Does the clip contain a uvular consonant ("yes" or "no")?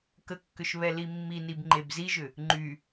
no